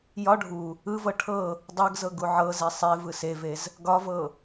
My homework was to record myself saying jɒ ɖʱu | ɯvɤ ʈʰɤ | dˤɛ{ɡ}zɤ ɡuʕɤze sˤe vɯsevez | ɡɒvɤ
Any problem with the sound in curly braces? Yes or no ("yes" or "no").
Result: no